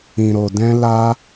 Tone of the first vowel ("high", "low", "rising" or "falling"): low